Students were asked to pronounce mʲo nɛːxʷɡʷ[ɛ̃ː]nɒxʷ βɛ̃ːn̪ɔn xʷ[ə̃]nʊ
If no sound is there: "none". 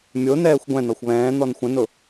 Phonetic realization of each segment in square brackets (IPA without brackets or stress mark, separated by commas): ɛ̃, ə̃